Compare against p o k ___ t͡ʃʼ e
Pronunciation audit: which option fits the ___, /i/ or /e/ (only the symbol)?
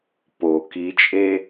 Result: i